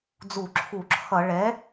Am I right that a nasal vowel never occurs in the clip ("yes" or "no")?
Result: yes